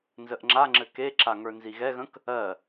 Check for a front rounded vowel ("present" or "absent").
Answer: absent